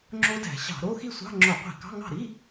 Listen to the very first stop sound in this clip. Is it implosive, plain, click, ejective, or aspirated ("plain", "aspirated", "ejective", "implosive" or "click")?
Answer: click